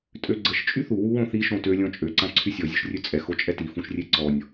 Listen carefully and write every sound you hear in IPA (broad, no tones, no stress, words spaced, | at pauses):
tʼøɡ͡ǀəʃ t͡ʃʼyθu wuwõθi ʃõtø lʲɔ̃t͡ʃʼø ǀãǀʰysʲɔ zʲøʃrʲøt͡sʼɛ xot͡ʃʼɛti fũʃrʲeǀɔnʲ